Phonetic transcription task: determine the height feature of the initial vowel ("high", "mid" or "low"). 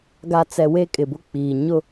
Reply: low